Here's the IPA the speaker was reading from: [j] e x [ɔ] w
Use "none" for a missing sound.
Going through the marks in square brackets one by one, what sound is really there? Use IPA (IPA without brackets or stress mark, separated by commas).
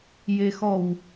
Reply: j, ɔ